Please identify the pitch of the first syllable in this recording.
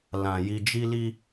low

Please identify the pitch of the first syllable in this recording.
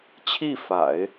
falling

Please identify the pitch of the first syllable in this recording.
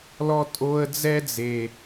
high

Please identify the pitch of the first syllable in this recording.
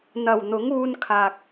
low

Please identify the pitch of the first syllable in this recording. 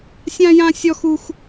high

